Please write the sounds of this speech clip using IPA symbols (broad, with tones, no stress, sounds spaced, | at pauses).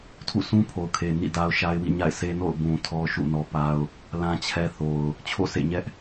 tʰ ṵ˦˨ sʰ ũ˦ pʰ o˨ ʊ̯ kʰ e˨ n ḭ˦˨ d a˦ ʊ̯ ʃ a˦ ɪ̯ w ḭ˦˨ ɲ a̰˦˨ ɪ̯ sʰ e˦ n o̰˦˨ ʊ̯ b ũ˨ tʰ ɔ˦ ʃ ṵ˦˨ n ɔ˦ p a˦ ʊ̯ | l ã˦ t͡ɕʰ ɛ˦ θ o˨ ʊ̯ | t͡ɕʰ o̰˦˨ s ḛ˦˨ ɲ ɛ˦ ʔ